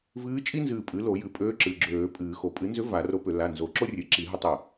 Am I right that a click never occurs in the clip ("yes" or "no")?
no